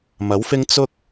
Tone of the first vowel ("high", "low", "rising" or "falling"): rising